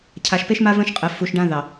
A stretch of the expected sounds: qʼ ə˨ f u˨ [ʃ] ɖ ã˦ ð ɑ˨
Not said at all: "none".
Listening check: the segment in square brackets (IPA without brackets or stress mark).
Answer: ʃ